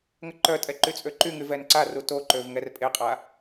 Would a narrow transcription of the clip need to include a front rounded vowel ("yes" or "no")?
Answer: yes